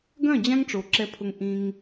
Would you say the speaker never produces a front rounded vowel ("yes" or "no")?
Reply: no